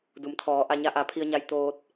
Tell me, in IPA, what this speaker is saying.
d u˩˧ m t̪ʰ ɔː˩˧ ʔ a˧ ɲ a˧˥ ʔ a˩˧ pʰ i˧ ə̯ ɲ a˧ j t̪ oː˧ t̚

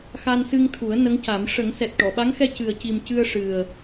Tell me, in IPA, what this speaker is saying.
x a˧ n s ɨ˧ ŋ t̪ʰ u˨˩˦ ə̯ n ə˧˥ ŋ c a˨˩˦ m ʂ ə˨˩˦ ŋ s ɛ˨˩ t̚ ʈ ɔ˨˩˨ ɓ a˧˥ ŋ x ɛ˧ c ɨ˨˩ ə̯ c i˨˩ m c ɨ˧ ə̯ ʂ ɨ˨˩ ə̯

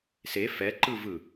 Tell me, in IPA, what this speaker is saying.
s e f ɛ ǃ ɯ v ɯ

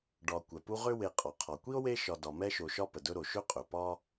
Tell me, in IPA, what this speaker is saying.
ɖ ɒ˨ kʷ ɛ˩ p u˦ ʁ ʏ˥ w e˨ qʼ ɒ˩ qʰ ɒ˩ kʷ i˥ o̯ w e˦ ʃ ɒ˨ d ɒ˨ m ɛ˥ ʃ o˨ ʃ ɒ˥ p ə˩ d ɵ˦ ɾ o˩ ʃ ɵ˥ qʼ ɵ˩ p ɒ˦

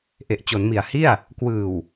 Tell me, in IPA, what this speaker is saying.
ʔ e˨˩ ʔ t͡ɕ o˩˦ n m i˨˩ a̯ h i˥˩ a̯ | k w ɯː˨˩ w

